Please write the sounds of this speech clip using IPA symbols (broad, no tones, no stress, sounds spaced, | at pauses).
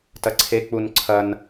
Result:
t ɐ ǀʰ e k͡p u n ǀʰ ɐ n